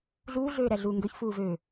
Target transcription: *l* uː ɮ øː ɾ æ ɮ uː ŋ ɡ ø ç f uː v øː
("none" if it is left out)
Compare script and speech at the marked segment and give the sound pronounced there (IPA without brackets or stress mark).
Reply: ɮ